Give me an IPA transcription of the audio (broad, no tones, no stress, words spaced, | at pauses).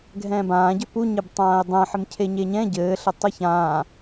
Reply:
ɡʱɛ̃ːbãːɟɘ puɲeb tˤãːɪ̯dˤɛ̃ ħɘmcʰeɲeɲɛ̃ ɟɘːɬɘ tˤɨçãː